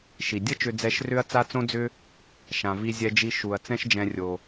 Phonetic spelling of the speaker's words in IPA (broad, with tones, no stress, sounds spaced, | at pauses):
ʃ i˩ dʲ ə˥ t͡ʃ ʏ˧ d͡z ɛ˧ ʃ r ʏ˥ ɐ̯ t͡s a˥ t͡s õ˥ d͡z ʏ˥ | ʃ ã˩ v i˧ zʲ ɛ˧ d͡ʒ i˧ ʃ u˩ ɐ̯ t͡s ɛ̃˥ ʃ d͡ʒ ɛ̃˧ rʲ o˩